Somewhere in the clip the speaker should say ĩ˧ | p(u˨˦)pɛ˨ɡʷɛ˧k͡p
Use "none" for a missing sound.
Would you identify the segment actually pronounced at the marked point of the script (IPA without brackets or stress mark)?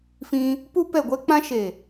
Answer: u˧